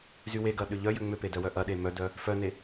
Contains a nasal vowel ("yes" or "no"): no